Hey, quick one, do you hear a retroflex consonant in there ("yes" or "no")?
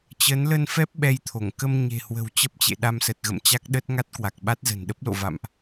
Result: no